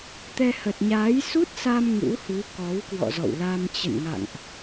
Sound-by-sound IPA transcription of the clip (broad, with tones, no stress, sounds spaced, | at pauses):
t̪ ɛ˧ h ə˨˩ t̚ ɲ aː˨˦ j s u˦˥ t̚ s a˧ m ŋ ṵ˧˥ h u˨˦ k ɔ˨˦ w k w ɔ̰˧˨ z ɔ̰˧˨ w l a˧ m t͡ɕ ə̰˧˨ n ŋ a̰˧˨ ŋ ʔ